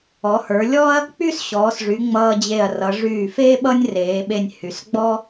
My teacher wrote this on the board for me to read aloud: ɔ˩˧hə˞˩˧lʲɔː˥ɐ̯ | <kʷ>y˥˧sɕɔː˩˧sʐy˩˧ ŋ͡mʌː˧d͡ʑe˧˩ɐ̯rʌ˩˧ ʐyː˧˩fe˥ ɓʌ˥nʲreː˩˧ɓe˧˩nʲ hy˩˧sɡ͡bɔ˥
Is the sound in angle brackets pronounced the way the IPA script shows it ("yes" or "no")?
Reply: no